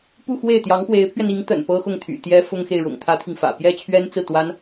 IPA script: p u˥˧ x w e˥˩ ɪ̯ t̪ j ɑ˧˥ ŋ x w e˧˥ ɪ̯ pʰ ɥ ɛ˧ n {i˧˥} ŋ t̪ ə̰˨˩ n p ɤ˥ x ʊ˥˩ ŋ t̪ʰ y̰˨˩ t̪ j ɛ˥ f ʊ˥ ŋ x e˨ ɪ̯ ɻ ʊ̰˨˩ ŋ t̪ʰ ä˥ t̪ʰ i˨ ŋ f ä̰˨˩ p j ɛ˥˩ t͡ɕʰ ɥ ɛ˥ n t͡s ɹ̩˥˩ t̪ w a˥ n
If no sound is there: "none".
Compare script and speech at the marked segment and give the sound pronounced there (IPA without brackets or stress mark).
i˧˥